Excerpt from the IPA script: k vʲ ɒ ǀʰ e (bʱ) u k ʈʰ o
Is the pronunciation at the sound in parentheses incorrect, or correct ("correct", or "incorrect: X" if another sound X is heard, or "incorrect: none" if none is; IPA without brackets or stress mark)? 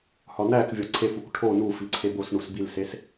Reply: incorrect: f